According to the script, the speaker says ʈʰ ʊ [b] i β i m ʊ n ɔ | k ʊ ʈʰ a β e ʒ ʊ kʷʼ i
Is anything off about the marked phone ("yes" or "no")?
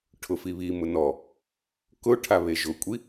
yes